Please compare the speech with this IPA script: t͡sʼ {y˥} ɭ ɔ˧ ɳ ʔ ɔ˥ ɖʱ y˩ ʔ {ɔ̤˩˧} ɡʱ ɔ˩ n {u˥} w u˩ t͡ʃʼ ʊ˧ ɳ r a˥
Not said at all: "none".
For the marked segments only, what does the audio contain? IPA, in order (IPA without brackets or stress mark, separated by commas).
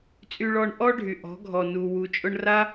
y˧, ɔ̤˩˧, u˩